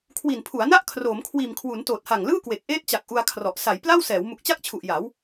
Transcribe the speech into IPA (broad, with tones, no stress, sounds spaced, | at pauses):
kʰ w i˨˩ n pʰ u˩˦ a̯ n a˥˩ ʔ kʰ r oː˩˦ m kʰ w iː˨˩ m kʰ w u˩˦ n t oː˨˩ t̚ h a˨˩ ŋ l ɯː˥˩ k w e˨˩ k̚ ʔ eː˥˩ t̚ t͡ɕ a˨˩ k̚ ʔ u˧ a̯ kʰ r ɔ˨˩ ʔ s a˩˦ j p l a˥˩ w s ɛː˩˦ w m u˨˩ k̚ t͡ɕ a˥˩ k̚ t͡ɕʰ u˨˩ ʔ j a˩˦ w